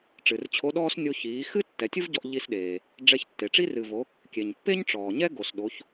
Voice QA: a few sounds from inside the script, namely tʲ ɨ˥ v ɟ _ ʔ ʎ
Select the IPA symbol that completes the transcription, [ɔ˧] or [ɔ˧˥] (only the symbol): ɔ˧